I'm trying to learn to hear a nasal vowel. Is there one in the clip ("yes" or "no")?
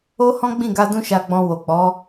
yes